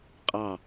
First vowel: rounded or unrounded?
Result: unrounded